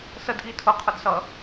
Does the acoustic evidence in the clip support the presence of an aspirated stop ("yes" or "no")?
yes